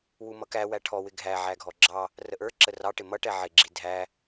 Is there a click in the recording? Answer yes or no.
yes